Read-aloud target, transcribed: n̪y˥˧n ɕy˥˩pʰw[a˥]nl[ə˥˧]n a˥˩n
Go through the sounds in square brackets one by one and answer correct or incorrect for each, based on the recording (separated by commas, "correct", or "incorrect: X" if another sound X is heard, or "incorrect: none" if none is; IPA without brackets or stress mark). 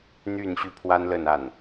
correct, correct